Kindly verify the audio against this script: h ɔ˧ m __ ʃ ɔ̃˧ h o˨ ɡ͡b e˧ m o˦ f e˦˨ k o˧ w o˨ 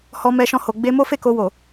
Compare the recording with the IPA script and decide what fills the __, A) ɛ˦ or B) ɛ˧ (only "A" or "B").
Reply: B